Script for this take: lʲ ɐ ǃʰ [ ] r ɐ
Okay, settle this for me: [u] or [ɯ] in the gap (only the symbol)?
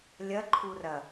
u